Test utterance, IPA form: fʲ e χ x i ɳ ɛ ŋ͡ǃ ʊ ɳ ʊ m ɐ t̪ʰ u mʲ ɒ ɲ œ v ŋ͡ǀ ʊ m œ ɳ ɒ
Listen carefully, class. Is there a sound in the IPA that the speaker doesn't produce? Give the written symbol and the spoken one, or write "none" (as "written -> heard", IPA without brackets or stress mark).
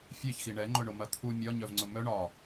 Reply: χ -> ç